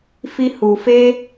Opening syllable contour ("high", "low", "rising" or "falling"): high